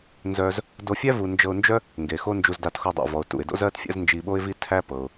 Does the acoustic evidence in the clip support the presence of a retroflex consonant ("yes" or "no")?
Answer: no